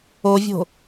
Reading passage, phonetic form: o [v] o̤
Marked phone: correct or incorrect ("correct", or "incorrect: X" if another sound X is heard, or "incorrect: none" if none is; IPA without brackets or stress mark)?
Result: incorrect: vʲ